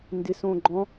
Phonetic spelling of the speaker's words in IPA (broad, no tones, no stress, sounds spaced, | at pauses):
n d ɪ s õ ɡ͡ǃ ɔ̃